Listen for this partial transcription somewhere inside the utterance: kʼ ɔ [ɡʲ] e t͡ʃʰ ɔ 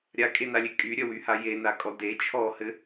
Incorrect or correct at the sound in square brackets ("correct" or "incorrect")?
incorrect